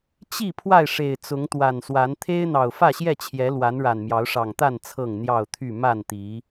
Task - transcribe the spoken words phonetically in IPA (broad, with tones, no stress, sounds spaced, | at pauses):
t͡ɕ i˥˨ pʰ w a˥˨ ɪ̯ ʂ e˨˩ ɪ̯ t͡s ʊ˨˦ ŋ t̪ w a˨˩ n s w a˨˦ n t̪ʰ e˦ ɪ̯ n̪ ɑ˨˩ ʊ̯ f ä˥˨ ɕ j ɛ˥˨ t͡ɕʰ j ɛ˨˦ l w a˨˦ n ɻ a˨˩ n m j ɑ˨˦ ʊ̯ ʂ ɑ˨˩ ŋ t̪ a˥˨ n t͡sʰ ɤ˥˨ ŋ n̪ j ɑ˥˨ ʊ̯ t̪ʰ y˥˨ m a˥˨ n t̪ i˨˦